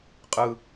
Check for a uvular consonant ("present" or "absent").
present